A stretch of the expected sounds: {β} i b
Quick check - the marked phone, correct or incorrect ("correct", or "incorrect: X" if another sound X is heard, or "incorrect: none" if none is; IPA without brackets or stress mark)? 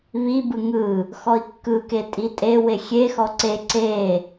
correct